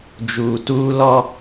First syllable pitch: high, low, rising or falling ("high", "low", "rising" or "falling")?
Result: low